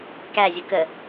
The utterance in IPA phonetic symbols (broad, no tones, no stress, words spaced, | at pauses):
kæzʲʊ kə